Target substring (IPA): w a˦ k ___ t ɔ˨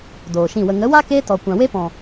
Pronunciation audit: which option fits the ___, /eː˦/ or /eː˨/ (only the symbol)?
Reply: eː˦